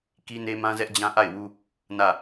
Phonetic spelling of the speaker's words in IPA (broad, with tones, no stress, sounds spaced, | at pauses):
k i˦ n e˦ m ã˦ z ɛ˦ ʔ d͡ʑ ã˦ ʔ a˦˨ ɪ̯ w u˦ | n ä˦˨